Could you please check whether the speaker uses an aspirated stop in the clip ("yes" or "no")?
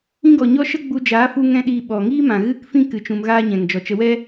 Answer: no